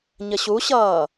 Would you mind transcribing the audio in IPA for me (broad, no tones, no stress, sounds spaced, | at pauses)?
ɲ ə ɕ u ɕ ʌː